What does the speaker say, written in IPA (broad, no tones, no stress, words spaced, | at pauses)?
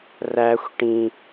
ræxʷ ʈĩ